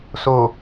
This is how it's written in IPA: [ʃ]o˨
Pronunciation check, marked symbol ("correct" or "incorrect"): incorrect